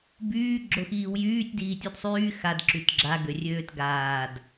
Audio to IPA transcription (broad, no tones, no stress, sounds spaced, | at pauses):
b yː ɡ͡ǁ o x iː w j yː tʲ d iː tʲ u d sˤ yː x a d ǁ y t ɡ͡ǁ a ɡ ø rʲ øː t ɡ aː d